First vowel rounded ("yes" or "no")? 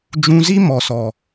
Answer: yes